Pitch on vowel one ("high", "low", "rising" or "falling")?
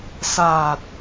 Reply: low